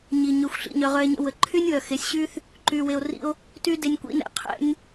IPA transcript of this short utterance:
ɲ i˨ ɲ ø˨ xʷ ɬ ḭ˨ ɲ œ˨ ʁ œ˧ e̯ ɲ ə̰˧ w ə˨ ǃʰ y˦ nʲ w œ˨ x e˨˦ sʲ ɕ y˦ θ | ǃ y˧ w e˧ o̯ r ḭ˦ o̯ | t y˦ d e˧ nʲ kʷ ḭ˦ n ɛ̰˧ qʰ ɛ̰˦ nʲ

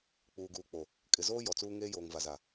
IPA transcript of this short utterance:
k͡p uː˨ ɡ uː˨ k͡p o˨ | kʼ ɪ˨ z oː˦ j ɔ˨ t͡s uː˦ ŋ eː˦ j oː˨ ŋ v a˨ z a˨

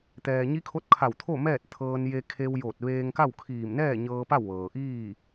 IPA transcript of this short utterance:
t̪ ɛː˩ ɲ i˧˥ kʰ o˧˥ t̚ kʰ a˧˩ w t̪ʰ o˥˨ m ɛː˥˨ t̚ t̪ʰ ɤː˧ n j e˧ kʰ e˧ w j oː˧˩ t̚ ʋ eː˧ ŋ k a˥˨ w kʰ iː˧˩ m n ɛː˥˨ ɲ ɤː˧ p a˥˨ w ʋ ɤː˩ ʔ iː˥˨

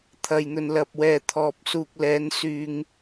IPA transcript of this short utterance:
t̪ʰ ɐ˨ j n̪ ɵ˨ n l ɐ˨ p̚ w ɛː˨ t̪ʰ ɔː˨ p̚ s uː˨ k̚ l ɛː˨˧ n s yː˨ ŋ

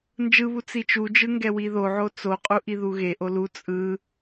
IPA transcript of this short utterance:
n d͡ʒ ɯ β u t͡s i t͡ʃ u d͡ʒ ɯ ŋ ɡ ɛ w i ð o ʕ o t͡s o qʼ u ʔ i ð u ɣ e ʔ o l u t͡sʼ ɯ

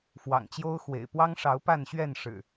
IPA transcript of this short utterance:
f w ɑ̰˨˩ ŋ t͡ɕ j o˦ ʊ̯ x w ḛ˨˩ ɪ̯ p w ɑ˦ ŋ ʂ ɑ˨˦ ʊ̯ p a˥˨ n ɕ ɥ ɛ˥˨ n ʂ ɻ̩˨˩

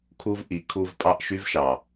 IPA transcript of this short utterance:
kʰ u˧ v ʔ i˨˦ kʰ u˧ v pʼ ɑ˦ ʔ ʃ y˧ v ʃ ɑ˨

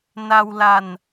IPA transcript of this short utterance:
n a˧ w l a˧ n

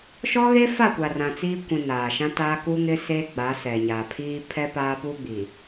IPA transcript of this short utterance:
ʃ ɔ˦ ɣ eː˦ f a˦˨ kʷ a˨ r ã˨ t͡s iː˦ kʷ ĩ˨ n aː˨ ʃ ã˦ t aː˦ k u˦ ŋ ɪ˦ s eː˦ ɡ͡b a˨˦ s ɛ˨ ɲ a˨ pʰ iː˦ pʰ ɛ˦ p aː˦ p uː˦ ɡ͡b i˨

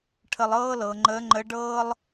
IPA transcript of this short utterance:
ʈʰ ə˧ lˠ ɤː˥ l ɤ˩˧ ŋ͡ǃ əː˧˥ ŋ͡ǃ ə˧˥ ɖ ɤː˥ lˠ

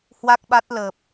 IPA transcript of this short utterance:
h w a˦˥ k̚ ɓ a˦˥ t̚ l əː˨˩ p̚

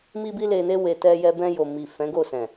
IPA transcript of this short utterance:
m i˧ b i˧ l e˨ n e˧ w e˨ t ɛ˧ j ɛ˧ b ɛ̃˧ j o˨ m i˨ f ɛ̃˨˦ ɡ o˦˨ s ɛ̃˨

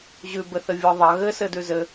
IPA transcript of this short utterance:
ʑ ʉ b ɘ θ ɘ vʲ ɔ ðˤ ɐ ɣ ɘ s ɘ d ʉ z ɘ

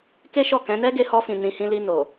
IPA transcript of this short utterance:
k e˦ ʃ ɔ˦˨ k ɛ̃˨˦ n ɛ˦ ɡ e˧ h ɔ˧ f ĩ˨ n ĩ˨ h ĩ˧ l i˧ n o˨

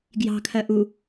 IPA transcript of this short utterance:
ɡ j ɑ̤ kʰ ɜ ʔ u

